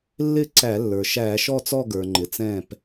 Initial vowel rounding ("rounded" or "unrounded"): unrounded